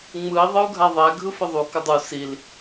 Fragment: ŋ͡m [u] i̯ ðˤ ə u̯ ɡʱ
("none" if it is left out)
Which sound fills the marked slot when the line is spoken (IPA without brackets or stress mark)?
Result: ɯ